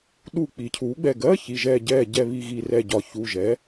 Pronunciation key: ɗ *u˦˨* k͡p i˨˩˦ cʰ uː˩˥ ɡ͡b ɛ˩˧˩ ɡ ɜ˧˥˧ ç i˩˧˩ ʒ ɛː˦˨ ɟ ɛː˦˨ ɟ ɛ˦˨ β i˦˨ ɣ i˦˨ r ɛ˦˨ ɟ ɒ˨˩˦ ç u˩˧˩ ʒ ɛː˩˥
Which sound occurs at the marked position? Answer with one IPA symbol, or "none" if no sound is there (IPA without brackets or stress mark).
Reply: u˦˨